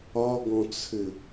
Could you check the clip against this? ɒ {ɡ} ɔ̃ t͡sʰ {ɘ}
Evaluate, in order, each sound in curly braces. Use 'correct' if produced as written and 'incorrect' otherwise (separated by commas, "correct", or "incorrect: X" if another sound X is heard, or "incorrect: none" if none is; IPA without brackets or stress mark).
correct, correct